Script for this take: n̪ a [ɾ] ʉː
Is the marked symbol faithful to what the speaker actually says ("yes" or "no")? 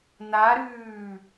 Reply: yes